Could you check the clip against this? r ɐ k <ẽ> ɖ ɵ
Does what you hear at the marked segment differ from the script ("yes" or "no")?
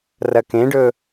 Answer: no